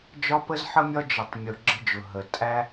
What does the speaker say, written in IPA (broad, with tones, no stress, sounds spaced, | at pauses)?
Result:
d͡ʒ ɒ˦ p ə˦ z ħ ə˦ mʲ ɒ˦ d͡ʒ ə˩ tˤ mʲ ʊ˩ ɡ͡ǁ ə̤˦ d͡ʒ ʊ˩ ɦ ə˩ tʼ æ˦